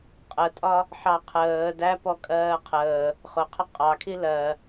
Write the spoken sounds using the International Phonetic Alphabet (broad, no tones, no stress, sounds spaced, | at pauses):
qʼ ə tʼ ɒ | ħ ɑ qʰ əː d æ p ɔ kʼ ɜː qʰ əː | χ ʊ qʰ ə qʼ ɑ kʰ i l ɜ